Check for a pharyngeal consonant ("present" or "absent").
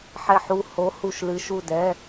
present